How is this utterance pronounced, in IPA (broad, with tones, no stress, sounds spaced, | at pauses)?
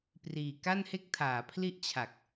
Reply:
p r iː˨˩ k a˥˩ n h e˥˩ k̚ tʰ aː˩˦ pʰ l i˥˩ ʔ t͡ɕʰ a˨˩ k̚